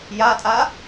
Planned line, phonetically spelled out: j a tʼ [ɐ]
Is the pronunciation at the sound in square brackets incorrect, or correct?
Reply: incorrect